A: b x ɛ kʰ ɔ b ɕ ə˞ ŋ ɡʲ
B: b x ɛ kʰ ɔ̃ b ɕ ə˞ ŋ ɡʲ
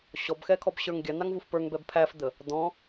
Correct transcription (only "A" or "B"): A